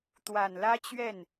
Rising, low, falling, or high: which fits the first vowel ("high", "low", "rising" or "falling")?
low